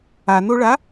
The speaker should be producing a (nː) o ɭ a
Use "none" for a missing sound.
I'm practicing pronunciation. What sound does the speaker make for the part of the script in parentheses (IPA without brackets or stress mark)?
n